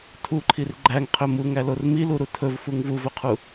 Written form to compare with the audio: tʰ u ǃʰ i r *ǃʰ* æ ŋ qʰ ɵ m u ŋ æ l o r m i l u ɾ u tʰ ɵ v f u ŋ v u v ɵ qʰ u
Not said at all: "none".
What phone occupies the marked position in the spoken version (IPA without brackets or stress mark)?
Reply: ɡ͡ǃ